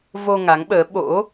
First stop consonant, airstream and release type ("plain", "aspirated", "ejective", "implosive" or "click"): implosive